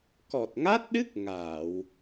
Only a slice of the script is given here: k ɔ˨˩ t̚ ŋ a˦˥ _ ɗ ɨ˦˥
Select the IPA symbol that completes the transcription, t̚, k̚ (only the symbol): t̚